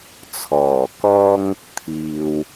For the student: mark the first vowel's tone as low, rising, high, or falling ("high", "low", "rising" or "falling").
low